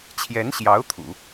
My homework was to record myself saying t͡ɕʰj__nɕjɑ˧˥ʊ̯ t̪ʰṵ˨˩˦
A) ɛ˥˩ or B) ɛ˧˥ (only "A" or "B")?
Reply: B